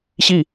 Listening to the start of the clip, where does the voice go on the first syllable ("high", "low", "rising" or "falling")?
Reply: falling